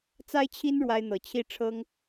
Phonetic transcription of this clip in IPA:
t͡s a˦ ɪ̯ t͡ɕʰ i˦ n ɻ w a˦ ɪ̯ n̪ ɤ˨˦ t͡ɕʰ i˦ ʈ͡ʂʰ ɤ˦ ŋ

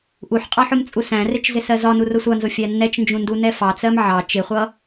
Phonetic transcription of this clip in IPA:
ʔ u ħ qʼ ɑ ħ ʊ m t͡sʼ u s æ̃ r ɪ t͡ʃ z ɪ s ɜ z ɒ n u r ʊ sʷ ʌ n z ʊ fʲ æ nː ɛ t͡ʃ n d͡ʒ ũ n d u n ɛ f ɑ t͡s ɜ m ʕ ɑ t͡ʃ ɪ χʷ ʌ

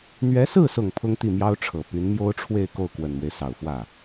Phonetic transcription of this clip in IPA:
n̪ ɥ ɛ˧˥ s ɹ̩˥˩ s ʊ˨˩ ŋ pʰ ʊ˥ ŋ t̪ i˥˩ m j ɑ˥ ʊ̯ ʈ͡ʂʰ ɤ˨˩ p y˧˥ n m j o˥ ʊ̯ ʈ͡ʂʰ w e˥˧ ɪ̯ k o˥˩ ʊ̯ k w ə˨˩ n m w e˦ ɪ̯ s ɑ˨˩ ʊ̯ f w ä˥˩

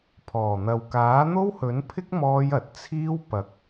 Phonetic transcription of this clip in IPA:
pʰ ɔː˨˩ n̪ ɐ˨ w k aː˨˥ n̪ o˥ w h ɵ˨˥ n pʰ ɪ˥ k̚ m ɔː˧ j ɐ˨ t̚ t͡sʰ iː˥ w p ɐ˨˥ k̚

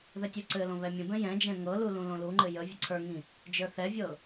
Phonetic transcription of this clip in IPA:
ð ɘ tʲ u ǀ ɘ l õ β ɛ mʲ ə̃ b ɛ̃ j ɛ̃ d͡ʒ ɛ̃ ŋ ɤ l u l ũ l õ l u ŋ͡ǃ ɘ j ə vʲ ə ǀʰ ə˞ ŋ ĩ | d͡ʒ ə˞ θ ɛ vʲ ɤ

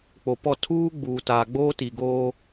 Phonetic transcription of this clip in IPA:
k͡p o˨ p ɔ˦˨ tʰ uː˦ ɡ͡b uː˨ t a˨ ɡ͡b oː˦ t i˨ ɡ oː˦

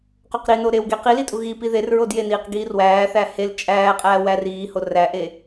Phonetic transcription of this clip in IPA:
q o q ɾ i n o ɾ e w ɡ e q i l i tʼ u ɣ i p i ð e r ɹ o d j e n iː q ɡ iː r w æː θ æ h e l t͡ʃʼ æː qʼ æː w æ r iː h o r æ ʔ e

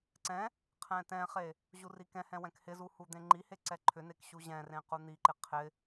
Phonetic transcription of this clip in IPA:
ǀ ɛ̃ | qʰ ɛ̃ t ɛ̃ χ e | ʑ u r i k ɛ̃ h ɛ̃ w ɛ̃ k h ɪ z u h u d̪ ẽ ŋ͡ǃ i h e ǀ ɛ ǃʰ ʏ n e k ɕ u ʑ ɛ̃ r ẽ q u n̪ i ǃ ɪ qʰ ɪ

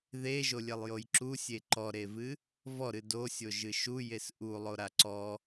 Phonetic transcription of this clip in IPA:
ð e ʒ o lʲ e lˠ j o j ǁ u sʲ e ǃ ɔ ɾ e v ɨ | v ɔ ɾ ɨ d o sʲ o ʒ ɨ ʃ u j e s ʔ u lˠ o ɾ a ǀ ɔ

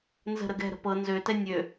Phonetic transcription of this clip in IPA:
n z ə̤ ɾ ə ɡ ɛ̤ ɾ ə̤ p ɤ n z ø t ɛ nʲ ø

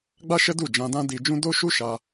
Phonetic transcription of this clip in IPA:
ɡ͡b a˦ ʃ ɛ˦ d u˦˨ d͡ʒ ã˧ d ã˦ d i˧ d͡ʒ ũ˦ d o˦ ʃ u˦ ʃ a˧

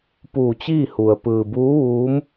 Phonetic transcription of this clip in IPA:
p uː˧˩ t͡ɕ iː˥˨ h u˩ ə̯ p ɯː˩ b uː˧˥ ʋ uː˧˥ m

